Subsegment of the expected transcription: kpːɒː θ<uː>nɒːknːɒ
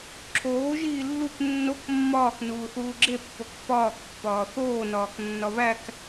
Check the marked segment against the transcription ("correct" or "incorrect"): incorrect